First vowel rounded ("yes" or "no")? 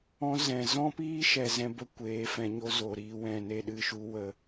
yes